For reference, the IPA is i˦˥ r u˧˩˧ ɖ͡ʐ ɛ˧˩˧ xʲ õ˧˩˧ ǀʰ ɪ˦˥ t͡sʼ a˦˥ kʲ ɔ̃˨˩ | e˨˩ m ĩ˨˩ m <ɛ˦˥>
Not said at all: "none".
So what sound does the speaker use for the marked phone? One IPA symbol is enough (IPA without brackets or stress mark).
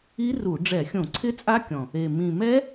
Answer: ɛ˦˥